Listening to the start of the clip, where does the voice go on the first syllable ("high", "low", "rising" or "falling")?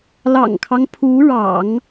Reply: low